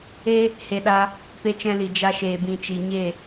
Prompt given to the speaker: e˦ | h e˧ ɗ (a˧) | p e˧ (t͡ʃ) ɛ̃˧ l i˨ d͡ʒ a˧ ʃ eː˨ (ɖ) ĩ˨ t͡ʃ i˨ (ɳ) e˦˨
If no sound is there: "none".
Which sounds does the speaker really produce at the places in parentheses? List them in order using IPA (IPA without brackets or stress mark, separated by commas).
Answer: a˦, t͡ʃ, b, ɲ